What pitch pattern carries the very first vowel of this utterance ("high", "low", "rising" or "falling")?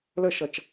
falling